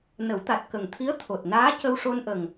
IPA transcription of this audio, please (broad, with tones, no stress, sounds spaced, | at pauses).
n ə˨˩˦ w t̪ a˨˩ t̚ k ə˨˩ ŋ t̪ʰ i˧˥ ə̯ t̪ʰ o˨˩ t̚ n aː˧˥ c ə˧ w ʂ o˧ n ʔ ə˨˩ ŋ